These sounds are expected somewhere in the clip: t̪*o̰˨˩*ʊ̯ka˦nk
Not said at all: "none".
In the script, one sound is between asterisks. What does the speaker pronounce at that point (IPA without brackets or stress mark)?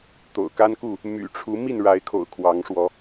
o̰˨˩